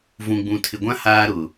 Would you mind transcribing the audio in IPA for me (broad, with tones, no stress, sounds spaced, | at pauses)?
v ũ˨ ɡ͡b ũ˨ tʰ ɪ˨ ɡʷ ã˦ h aː˦ ɾ ʊ˨